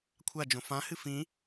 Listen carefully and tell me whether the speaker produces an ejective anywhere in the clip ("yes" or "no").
no